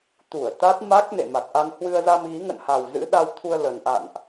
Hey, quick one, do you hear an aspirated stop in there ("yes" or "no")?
yes